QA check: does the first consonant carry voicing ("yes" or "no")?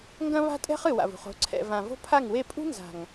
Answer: yes